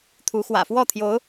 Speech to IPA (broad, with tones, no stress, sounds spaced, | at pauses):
t̪ʰ u˧˥ x w ä̰˨˩ f w ɔ˥˩ t̪ʰ j o˧˥ ʊ̯